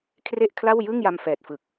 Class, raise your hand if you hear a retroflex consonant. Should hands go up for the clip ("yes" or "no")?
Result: no